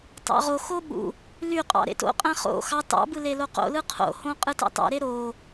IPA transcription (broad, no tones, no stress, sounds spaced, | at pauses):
t ɑ̰ ʁ o x o ɓ ṵ | l y qʼ ɑ̰ ɾ ḛ t o̰ qʼ æ̃ χ o̰ x ɑ t ɑ̰ b ɯ l e l o q o̰ l ɯ qʰ o̰ h õ qʼ ɯ t ɑ̰ t ɑ̰ ɾ e ɾ o